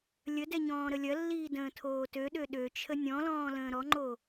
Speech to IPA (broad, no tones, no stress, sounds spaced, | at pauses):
lʲ ə d ɛ ɲ ɔ̃ː ɾ ə lʲ ɐ lː iː d ə̃ː tʰ oː t ø ɗ ø ɗ ø t͡ʃʰ ə nʲ ɔ̃ l ɔ̃ː l ə̃ː ɾ ɔ ŋ͡ǃ o